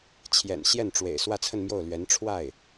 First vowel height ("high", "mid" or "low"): mid